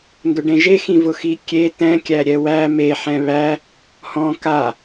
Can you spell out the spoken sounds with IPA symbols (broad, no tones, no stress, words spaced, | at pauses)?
ndʊɖẽʒexĩ vʊxikʲe tɛ̃kʲæ ɾʲɛwæ me ħɛ̃βæ | hɔ̃ ka